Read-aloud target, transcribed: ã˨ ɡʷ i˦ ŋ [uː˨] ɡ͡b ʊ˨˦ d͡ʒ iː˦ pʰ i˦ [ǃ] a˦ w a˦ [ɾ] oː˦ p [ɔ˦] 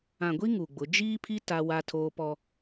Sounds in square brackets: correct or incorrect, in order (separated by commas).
incorrect, incorrect, incorrect, correct